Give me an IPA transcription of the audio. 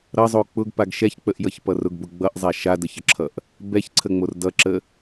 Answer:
ɾʌzˤo k͡pʊɡpaɡ ʃɛçk͡pəʔjʌçpʌ rʊɡbʊ ɡ͡bʌʔzˤa ʃadəçəǁʰʌʔ | bɛçǀʰəŋ͡mor dʌǁə

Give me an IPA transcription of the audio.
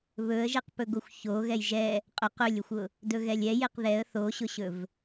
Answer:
βɵə̯ʒeqpɵɡoxʷ çoɣɛj ʒɛ | qʼʊq ɵlʲɵxʷʊ | dɵɣɛlʲɛ jeqðɛə̯ θoɕʊɕɵv

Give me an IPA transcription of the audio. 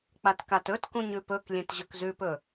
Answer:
k͡patkatɵtkũɲ ʉpɵklʲẽt ʑɵkzʉpɵ

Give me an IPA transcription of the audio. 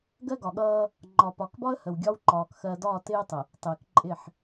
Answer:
ɡɜ˦ɡɒ˨ɠʌː˦ | ŋ͡ǃɒ˨pɒ˨kbɒ˦ə̯ hə˨wɡʲɒ˦wǃɒː˨k xɜ˨ dɒː˦˨tɪː˦tˤə˨ | tˤɪː˨kǃʼɪ˦˨ħ

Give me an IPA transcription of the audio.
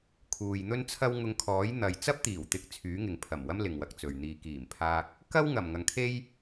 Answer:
kʰuː˨jn̪ɵ˥nt͡sʰɐ˥w ŋʊ˧ŋkʰɔː˨˥jn̪ɐ˨j t͡sɐ˥p̚t̪iː˨˩wt̪ɪ˨˥k̚ t͡sʰyː˨˥ŋɪ˨ŋpʰɐ˨˩mwɐ˥m lɪ˨ŋ wɐ˨˥k̚t͡sɵ˨ɥn̪iː˧ kiː˨˩mpʰaː˧k̚ | kɐ˥wŋɐ˨˩m ŋɐ˨ŋkʰe˥j

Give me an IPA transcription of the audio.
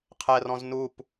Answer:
qʰɛrɔ̃z nup

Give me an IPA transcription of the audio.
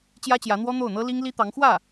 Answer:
t͡ɕjä˥t͡ɕjä˧˥n̪wɔ˥ n̪o˥˩ʊ̯n̪ɤ˥ li˥ŋli˥t̪ɑ˧˥ŋ xwä˥˩

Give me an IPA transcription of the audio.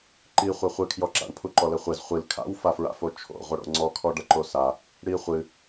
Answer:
ǃi χʷɛχʷɨkʰjɔǁa̰ɳ pʰuǃɔlɘχʷez χʷil kʰa̰wfafɹa̰fo t͡ʃʰo̰ ʁʷɐɽo̰ŋ͡ǀɔkʰɔ ɖɐǃosa | ɽi χʷɨ

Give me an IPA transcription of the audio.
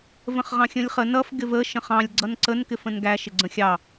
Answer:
və̃χʁɑ̃xʲə̃lʲχə nʌf ɡɪvə ʃə̃χɑ̃lʲ ɡ͡ǀʌnǀən kɪfə̃nɡæ ʃɪɡ͡ǀə̃xʲɑ

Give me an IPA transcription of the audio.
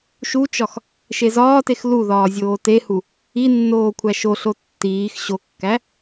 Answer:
ʃut͡ʃɒx | ʃezɒːtex luðɒː zʲoːtehu | inːoː kʷʰæʃoɬo tːiːx ɕokːæ

